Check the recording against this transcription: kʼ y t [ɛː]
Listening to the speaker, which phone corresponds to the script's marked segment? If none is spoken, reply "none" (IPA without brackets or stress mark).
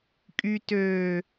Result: øː